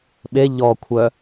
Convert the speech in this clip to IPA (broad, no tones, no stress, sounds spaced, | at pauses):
ɓ e ʎ ɔ kʷʰ œ